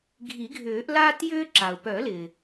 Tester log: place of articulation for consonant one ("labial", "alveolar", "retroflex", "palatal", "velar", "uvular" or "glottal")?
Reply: velar